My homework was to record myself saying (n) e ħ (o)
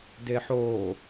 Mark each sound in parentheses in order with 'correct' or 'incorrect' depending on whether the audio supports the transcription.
incorrect: d, incorrect: oː

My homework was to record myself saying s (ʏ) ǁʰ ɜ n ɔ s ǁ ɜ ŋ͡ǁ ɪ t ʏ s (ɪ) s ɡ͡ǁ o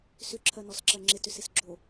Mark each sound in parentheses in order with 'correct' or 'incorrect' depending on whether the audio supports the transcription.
correct, correct

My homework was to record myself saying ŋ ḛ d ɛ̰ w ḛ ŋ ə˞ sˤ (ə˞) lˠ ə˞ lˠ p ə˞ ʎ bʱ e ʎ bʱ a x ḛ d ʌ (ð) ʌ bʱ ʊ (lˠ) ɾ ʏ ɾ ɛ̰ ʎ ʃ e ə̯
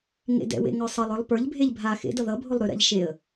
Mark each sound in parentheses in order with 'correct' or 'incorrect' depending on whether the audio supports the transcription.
incorrect: ʌ, correct, correct

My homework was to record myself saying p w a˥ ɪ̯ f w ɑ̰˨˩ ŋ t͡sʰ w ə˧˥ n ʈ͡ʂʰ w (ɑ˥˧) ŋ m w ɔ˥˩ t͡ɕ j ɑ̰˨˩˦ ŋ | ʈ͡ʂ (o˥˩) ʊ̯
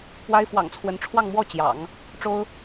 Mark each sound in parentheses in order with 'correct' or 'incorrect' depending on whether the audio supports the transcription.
correct, incorrect: o˥

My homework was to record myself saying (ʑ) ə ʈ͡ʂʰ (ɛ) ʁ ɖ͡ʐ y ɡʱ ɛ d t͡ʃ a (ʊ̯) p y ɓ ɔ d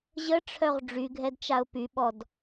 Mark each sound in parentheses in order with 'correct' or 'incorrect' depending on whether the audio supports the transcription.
correct, incorrect: œ, correct

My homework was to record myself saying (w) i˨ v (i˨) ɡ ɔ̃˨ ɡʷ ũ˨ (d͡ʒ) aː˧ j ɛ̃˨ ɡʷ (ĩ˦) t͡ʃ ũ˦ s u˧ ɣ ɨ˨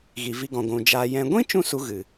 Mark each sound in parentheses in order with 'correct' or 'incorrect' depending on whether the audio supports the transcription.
incorrect: ɣ, incorrect: i˧, correct, correct

